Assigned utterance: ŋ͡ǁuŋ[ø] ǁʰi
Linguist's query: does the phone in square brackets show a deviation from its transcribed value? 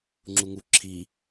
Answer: yes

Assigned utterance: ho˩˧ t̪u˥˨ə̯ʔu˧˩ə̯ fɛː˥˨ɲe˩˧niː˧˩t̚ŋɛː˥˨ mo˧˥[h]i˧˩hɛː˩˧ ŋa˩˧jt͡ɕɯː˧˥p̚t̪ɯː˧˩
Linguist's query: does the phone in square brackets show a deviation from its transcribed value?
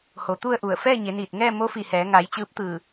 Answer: yes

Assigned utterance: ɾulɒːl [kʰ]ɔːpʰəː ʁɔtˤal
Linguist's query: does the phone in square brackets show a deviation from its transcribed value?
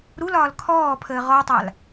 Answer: no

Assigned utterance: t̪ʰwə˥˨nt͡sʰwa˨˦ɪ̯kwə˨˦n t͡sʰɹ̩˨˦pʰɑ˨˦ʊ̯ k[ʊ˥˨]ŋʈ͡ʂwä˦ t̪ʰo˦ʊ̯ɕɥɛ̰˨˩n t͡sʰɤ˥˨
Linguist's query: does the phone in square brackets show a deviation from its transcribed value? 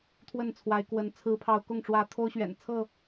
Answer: no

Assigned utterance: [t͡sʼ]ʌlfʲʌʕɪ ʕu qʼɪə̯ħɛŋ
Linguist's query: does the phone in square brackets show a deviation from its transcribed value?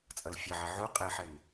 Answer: no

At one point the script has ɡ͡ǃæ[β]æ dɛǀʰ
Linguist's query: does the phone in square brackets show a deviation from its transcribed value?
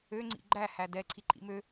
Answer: yes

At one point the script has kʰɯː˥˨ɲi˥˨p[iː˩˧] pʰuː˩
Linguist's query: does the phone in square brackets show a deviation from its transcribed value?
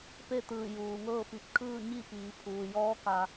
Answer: no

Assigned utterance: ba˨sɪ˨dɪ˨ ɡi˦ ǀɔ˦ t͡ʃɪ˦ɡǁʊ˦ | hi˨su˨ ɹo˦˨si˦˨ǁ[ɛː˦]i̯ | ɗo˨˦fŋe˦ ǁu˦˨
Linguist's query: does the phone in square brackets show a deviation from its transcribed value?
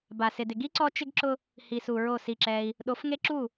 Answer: no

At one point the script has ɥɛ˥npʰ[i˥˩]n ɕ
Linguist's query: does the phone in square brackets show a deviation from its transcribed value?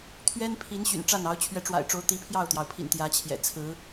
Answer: yes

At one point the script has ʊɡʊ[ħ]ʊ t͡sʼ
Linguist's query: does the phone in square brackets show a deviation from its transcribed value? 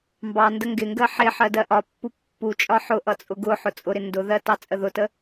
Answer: no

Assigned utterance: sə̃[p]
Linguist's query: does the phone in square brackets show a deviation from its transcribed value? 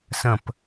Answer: no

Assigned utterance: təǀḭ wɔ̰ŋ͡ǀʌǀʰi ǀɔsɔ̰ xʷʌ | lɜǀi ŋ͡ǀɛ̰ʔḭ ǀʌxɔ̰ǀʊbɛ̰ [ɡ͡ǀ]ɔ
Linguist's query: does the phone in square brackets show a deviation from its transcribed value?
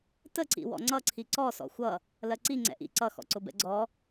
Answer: no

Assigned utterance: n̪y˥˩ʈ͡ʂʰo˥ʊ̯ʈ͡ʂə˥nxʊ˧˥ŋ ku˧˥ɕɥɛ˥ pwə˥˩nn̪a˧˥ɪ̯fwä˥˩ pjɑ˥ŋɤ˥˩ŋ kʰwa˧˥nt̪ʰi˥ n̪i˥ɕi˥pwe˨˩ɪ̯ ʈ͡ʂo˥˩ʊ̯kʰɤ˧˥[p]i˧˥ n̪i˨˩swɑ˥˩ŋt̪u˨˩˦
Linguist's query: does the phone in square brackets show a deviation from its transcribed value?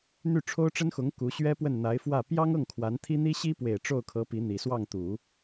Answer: no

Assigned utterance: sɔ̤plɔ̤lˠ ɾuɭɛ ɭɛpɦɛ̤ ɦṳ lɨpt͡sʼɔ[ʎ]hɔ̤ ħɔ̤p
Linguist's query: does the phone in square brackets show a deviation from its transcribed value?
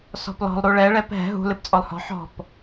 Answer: yes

